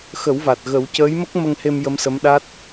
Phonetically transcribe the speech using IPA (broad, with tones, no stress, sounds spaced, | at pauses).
x ə˨˩˦ w v a˨˩ t̚ ɣ ə˨˩˦ w c əː˧˥ j m ə˦˥ k̚ m ə˧ ŋ h e˧ m j ə˧˥ m s ə˧˥ m ɗ a˦˥ t̚